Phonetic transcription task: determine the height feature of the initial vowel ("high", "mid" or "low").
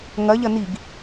low